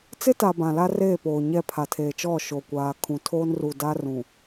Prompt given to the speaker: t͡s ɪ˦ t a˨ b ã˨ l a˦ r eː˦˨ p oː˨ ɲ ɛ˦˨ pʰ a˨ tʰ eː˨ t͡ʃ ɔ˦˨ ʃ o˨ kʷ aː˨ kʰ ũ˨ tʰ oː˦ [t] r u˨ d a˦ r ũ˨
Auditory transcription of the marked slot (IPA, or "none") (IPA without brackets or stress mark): n